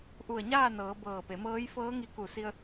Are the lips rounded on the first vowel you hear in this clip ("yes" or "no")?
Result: yes